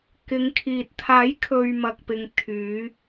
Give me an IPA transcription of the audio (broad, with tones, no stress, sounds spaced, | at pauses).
k ɪ˨˧ ŋ kʰ iː˨ t̚ t̪ʰ aː˨˥ j kʰ ɵ˨ ɥ m ɐ˨ k̚ p ɪ˨ ŋ t̪ʰ yː˨˧